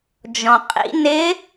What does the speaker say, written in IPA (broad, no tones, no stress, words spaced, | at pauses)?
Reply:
d͡ʒɔ̃qʼḭ nɪ